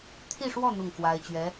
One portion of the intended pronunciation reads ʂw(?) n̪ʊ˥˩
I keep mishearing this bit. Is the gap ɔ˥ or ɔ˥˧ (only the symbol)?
ɔ˥˧